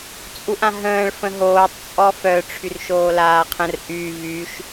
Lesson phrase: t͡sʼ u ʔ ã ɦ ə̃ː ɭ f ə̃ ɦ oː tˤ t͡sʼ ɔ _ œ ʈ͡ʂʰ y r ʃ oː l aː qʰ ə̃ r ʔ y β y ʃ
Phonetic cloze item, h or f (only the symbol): f